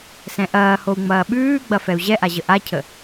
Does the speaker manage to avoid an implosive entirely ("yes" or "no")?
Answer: no